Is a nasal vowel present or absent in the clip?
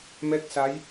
absent